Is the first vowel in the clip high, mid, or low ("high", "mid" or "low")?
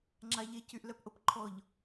low